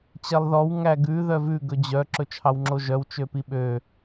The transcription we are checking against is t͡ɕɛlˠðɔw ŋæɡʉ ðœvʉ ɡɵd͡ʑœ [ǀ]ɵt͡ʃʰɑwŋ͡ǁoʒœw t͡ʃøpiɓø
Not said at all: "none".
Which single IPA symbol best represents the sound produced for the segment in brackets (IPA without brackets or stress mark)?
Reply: ǁ